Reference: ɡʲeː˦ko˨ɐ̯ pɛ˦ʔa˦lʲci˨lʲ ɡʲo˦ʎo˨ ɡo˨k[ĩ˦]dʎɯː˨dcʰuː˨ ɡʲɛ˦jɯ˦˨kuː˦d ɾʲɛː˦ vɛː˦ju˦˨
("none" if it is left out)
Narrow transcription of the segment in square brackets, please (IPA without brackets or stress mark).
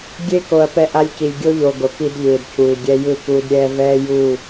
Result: i˦